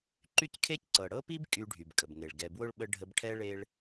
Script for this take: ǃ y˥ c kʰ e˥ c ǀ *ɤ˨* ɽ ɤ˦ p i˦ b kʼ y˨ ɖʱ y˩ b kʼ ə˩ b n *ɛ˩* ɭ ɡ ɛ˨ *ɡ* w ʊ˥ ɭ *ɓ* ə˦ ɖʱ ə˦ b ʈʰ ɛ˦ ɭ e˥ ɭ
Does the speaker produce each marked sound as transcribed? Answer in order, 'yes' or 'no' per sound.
yes, no, no, yes

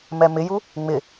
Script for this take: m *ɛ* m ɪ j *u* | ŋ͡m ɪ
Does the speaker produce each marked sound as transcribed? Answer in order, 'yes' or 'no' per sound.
yes, yes

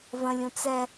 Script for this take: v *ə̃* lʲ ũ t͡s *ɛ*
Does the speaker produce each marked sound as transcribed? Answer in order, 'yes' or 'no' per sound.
yes, yes

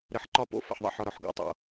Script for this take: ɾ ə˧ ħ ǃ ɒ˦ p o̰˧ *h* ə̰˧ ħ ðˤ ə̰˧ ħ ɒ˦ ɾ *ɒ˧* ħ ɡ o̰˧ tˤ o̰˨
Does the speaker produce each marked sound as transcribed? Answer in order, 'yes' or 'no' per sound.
no, yes

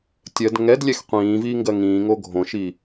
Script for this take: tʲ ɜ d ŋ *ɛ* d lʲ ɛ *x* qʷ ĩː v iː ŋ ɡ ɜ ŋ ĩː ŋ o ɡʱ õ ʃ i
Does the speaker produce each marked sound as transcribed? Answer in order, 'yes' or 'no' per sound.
yes, yes

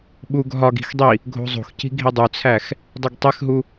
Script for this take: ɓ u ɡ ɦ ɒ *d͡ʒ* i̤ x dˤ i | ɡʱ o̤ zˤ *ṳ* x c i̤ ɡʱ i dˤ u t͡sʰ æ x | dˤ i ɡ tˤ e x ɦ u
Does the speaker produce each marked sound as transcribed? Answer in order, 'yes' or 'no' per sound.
no, no

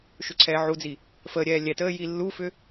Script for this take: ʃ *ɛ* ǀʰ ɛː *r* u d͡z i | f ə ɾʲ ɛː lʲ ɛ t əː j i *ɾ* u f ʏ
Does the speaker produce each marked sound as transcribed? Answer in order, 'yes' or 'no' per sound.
no, no, no

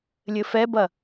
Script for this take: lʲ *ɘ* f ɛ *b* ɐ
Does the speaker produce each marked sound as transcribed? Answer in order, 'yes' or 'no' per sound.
yes, yes

